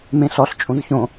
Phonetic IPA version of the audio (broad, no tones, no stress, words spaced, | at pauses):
mẽɬɔɬ t͡ʃʼũzçõ